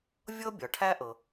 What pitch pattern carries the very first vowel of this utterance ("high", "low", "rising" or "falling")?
high